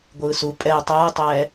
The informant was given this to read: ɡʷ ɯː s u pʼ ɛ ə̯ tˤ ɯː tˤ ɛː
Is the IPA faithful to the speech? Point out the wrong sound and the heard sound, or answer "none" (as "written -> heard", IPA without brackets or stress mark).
none